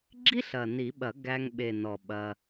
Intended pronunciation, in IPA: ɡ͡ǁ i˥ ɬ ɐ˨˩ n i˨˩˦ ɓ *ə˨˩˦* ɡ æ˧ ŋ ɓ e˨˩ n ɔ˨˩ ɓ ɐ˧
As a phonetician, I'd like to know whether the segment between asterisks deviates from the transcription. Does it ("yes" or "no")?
yes